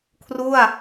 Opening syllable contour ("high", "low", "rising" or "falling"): falling